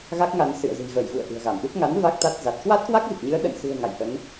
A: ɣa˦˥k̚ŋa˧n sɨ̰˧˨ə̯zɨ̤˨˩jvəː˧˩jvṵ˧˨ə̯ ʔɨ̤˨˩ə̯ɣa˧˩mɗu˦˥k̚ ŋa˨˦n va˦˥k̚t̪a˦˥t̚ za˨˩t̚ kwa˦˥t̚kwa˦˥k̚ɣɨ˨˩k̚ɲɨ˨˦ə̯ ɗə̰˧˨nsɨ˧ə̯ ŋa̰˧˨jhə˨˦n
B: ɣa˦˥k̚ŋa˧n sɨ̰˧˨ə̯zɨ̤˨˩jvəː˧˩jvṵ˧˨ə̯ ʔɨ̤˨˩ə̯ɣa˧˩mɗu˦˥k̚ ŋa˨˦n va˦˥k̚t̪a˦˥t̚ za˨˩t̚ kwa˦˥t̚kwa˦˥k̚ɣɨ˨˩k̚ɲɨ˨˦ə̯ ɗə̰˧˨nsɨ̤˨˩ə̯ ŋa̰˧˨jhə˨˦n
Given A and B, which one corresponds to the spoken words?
B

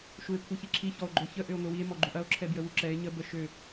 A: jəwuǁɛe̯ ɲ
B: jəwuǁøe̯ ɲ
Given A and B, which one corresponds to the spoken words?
A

